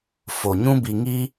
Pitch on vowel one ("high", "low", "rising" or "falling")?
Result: low